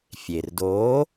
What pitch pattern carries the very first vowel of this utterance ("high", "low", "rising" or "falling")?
low